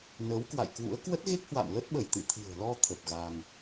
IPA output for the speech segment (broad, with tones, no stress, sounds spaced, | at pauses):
n əː˨˦ w k w a̰˧˨ j k w ṵ˧˥ ə̯ k w ə˦˥ t̚ ɣ e˦˥ k̚ h w a̰˧˨ m l ə˦˥ t̚ ɓ ə˧˩ j t̪ ɨ̰˧˨ t̪ʰ ɨ̤˨˩ ə̯ l ɔ˧ t̪ʰ ə˨˩ p̚ ɣ a˧ ŋ